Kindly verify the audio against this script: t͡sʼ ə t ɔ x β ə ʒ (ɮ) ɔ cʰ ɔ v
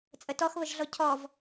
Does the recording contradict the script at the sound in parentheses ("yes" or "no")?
no